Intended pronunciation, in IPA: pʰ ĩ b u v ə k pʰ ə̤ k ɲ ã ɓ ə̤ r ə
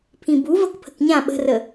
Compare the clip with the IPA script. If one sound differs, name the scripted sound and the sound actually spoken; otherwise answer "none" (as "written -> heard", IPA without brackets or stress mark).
none